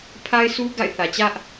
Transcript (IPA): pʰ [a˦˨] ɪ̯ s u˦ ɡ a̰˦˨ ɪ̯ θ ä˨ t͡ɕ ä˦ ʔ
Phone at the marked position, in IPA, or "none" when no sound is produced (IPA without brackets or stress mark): a˦